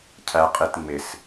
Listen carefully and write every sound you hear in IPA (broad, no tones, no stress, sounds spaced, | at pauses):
cʰ æ qʼ e t ŋ͡m ɪ s